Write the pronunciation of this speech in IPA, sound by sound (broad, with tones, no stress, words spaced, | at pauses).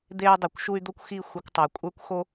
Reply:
d̪e˧y̯ dˤy˨kʷʃu˧y̯ d̪o˦kʷxi˦˨ xʷe˧kʷtˤu˨i̯kʷʼə˞˦kʷxo˦